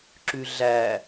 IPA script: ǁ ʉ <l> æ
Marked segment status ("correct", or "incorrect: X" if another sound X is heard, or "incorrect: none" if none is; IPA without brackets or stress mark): incorrect: ɮ